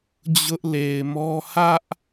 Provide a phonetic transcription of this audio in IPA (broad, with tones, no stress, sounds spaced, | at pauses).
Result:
d͡ʑ ʊ˦ ʔ l e˨ ɪ̯ m ɔ˦ h ä˦ ʔ